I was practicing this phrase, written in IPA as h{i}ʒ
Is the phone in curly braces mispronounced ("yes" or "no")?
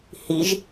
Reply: no